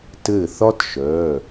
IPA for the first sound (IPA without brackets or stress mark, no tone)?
t